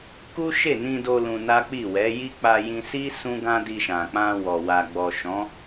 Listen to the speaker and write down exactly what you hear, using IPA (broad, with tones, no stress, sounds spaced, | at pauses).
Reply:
k u˦ ʃ e˦˨ n ĩ˧ d o˧ l ũ˧ n a˦ k͡p i˦˨ w ɛ˨˦ j i˦ k͡p a˧ j ĩ˧ s i˦ s ũ˦ ɡ ã˦ d i˧ ʃ ã˨ k͡p ã˧ w ɔ˨ w a˨ ɡ͡b ɔ˨ ʃ ɔ̃˨˦